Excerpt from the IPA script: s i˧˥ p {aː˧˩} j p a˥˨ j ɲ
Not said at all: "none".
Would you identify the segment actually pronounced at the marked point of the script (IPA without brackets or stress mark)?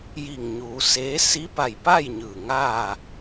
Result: a˧˩